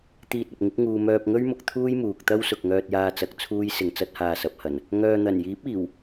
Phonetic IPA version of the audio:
t̪ iː˧ t̚ ɐ˨ p̚ ŋ ɪ˨˥ k̚ ŋ uː˨ m œː˧ p̚ ŋ ɵ˥ ɥ m ʊ˨ k̚ t̪ʰ uː˥ j m uː˨ k̚ t̪ ɐ˥ w s ʊ˨ k̚ ŋ œː˧ t̚ j aː˧ t͡s ɐ˨˥ k̚ t͡sʰ uː˥ j s ɪ˧ ŋ t͡s ɐ˥ t̚ h aː˧ s ɐ˨˥ p̚ h ɐ˨˩ n | ŋ œː˨ n̪ ɐ˨˩ n j iː˨˥ p̚ iː˨˩ w

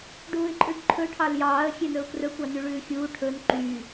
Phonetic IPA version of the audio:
ɖ uː ɪ̯ ǃʼ ʉ ɖ ǃʰ ɵ ʈʰ ɑ l j ɑː ə̯ xʲ e n ɵ ʊ̯ k r ɵ kʷ ɑ n y ɭ ʉː xʲ uː ʈʰ ɵ n ǃ y

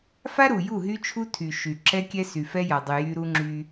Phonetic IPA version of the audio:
f a˦ ɾ u˨ j u˦˨ ɦ y˦ t͡ʃʰ u˦ tʰ y˨ ʃ y˨ ǁ ɛ˦ kʲ ɛ˦ s y˨ f ɛ˦ j a˨ dˤ y˨ j y˦ ɾ u˦ ŋ͡ǁ y˦

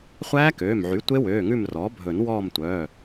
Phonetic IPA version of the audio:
χʷ æː˦˥ k øː˩˧˩ m ʕ y˩˥ tʷ e˦˥ w øː˩˧˩ ŋ ʉ˦˨ m r ɔː˩˥ bʱ ɵ˨˩˦ n w ɔː˦˨ m tʷ œ˩˧˩

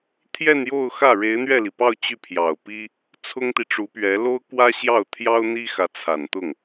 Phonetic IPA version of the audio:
t̪ʰ j ɛ˥˧ n j o˥˧ ʊ̯ x ä˥˩ ɻ e˧˥ ɪ̯ n̪ ɥ ɛ˥˩ l i˩ p ɑ˥˧ ʊ̯ t͡ɕ y˥˩ pʰ j ɑ˨˩ ʊ̯ p i˥ | t͡sʰ ʊ˥ ŋ t̪ i˨ ʈ͡ʂ u˧˥ p ɥ ɛ˧˥ l o˥ ʊ̯ k w ä˥ ɕ j ɑ˥˩ ʊ̯ t̪ʰ j ɑ˥ ʊ̯ n̪ i˥ x ä˧˥ t͡sʰ a˨˩ n t̪ ʊ˥˩ ŋ

